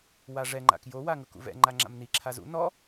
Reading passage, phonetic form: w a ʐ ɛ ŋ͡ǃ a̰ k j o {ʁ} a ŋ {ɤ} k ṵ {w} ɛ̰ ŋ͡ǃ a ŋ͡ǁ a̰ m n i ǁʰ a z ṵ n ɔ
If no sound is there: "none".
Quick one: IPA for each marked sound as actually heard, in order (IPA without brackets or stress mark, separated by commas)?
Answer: w, ɤ, v